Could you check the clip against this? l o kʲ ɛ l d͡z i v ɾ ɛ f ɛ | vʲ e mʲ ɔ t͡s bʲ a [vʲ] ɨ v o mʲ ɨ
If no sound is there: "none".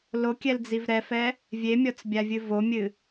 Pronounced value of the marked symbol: vʲ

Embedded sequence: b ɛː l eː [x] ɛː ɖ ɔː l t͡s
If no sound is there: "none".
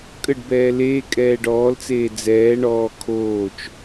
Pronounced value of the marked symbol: kʼ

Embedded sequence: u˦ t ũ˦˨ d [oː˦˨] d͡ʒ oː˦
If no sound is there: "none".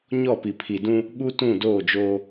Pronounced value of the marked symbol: oː˦˨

